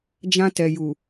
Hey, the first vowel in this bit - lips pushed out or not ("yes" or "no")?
no